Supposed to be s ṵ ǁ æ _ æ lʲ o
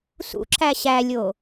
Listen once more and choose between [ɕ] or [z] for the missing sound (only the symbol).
ɕ